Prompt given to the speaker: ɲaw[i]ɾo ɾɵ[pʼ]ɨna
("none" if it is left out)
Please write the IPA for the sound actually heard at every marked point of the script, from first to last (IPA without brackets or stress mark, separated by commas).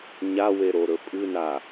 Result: e, pʼ